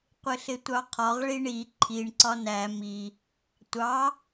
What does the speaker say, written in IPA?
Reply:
qʷ ɪ ɬ ɪ tʷ ɑ qʰ ɒ ʁ ɭ i ɳ i ǃʰ i ɳ ǀ ɒ n æ m i | tʷ ɑ

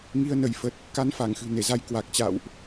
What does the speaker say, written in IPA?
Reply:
ŋ i˧ ə̯ n ə˧˩ j f ə˨˩ t̚ | k a˧ n f aː˧˩ ŋ x ɨ̤˨˩ n e˧˩ z a˨˦ j k w a˨˩ k̚ t͡ɕ a̰˧˨ w ʔ

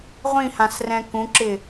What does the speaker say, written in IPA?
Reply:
ʁʷ ĩ h ã s r ɛ̃ k ũ ǁ ɪ

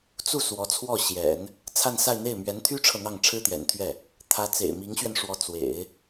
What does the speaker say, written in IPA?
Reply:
t͡s u˥˩ s w ɔ˧˥ t͡sʰ w ɔ˥˩ ɕ j ɛ̰˨˩˦ n | t͡sʰ a˥˧ n s a˥˧ ɪ̯ n̪ e˥˩ ɪ̯ m ɥ ɛ˧˥ n t̪ʰ y˥ ʈ͡ʂʰ ɤ˨ n̪ ɑ˥˩ ŋ ʈ͡ʂʰ ɻ̩˥ t̪ j ɛ̰˨˩ n t̪ʰ ɥ ɛ˥˩ | t̪ʰ ä˧˥ t͡s ḛ˨˩ ɪ̯ m i˧˥ ŋ ɕ ɥ ɛ˧ n ʂ w ɔ˧˥ t͡s w ḛ˨˩˦ ɪ̯

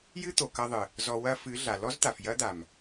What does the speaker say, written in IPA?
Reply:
j ɨ˦ t̪ o˨ k ɐ˧ ðˤ ɨ˨ | z ɔ˧ w ɐ˦ f ɨ˨˦ ɮ a˨ l ɔ˦ z t̪ a˨ f j ɐ˦ d̪ a˨ m

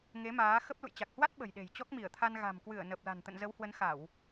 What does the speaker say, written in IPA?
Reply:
ŋ e˨˦ m aː˨˦ x ə˦˥ p̚ l ṵ˧˨ j t͡ɕ a˨˩ k̚ h w a˦˥ t̚ ɓ ə̤˨˩ j ɗ e̤˨˩ j t͡ɕ ɔ˦˥ k̚ m i˧˩ ə̯ t̪ʰ a˧ n ɣ a̤˨˩ m k w ɨ˧˩ ə̯ n ə˨˩ p̚ l a̤˨˩ n t̪ ə̰˧˨ n z ə˨˦ w h w ə˨˦ n x a˧˩˨ w

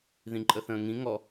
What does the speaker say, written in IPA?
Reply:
ð ĩ ǃʼ ə θ ə̃ː ŋ ĩ ŋ ɔ

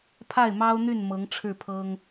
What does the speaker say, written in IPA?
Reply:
pʰ a˥˩ ɪ̯ m ɑ˥ ʊ̯ n̪ y˥˩ n m ɤ˧˥ ŋ ʈ͡ʂʰ ɻ̩˥˩ pʰ ɤ˥ ŋ

